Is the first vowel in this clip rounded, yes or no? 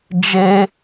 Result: no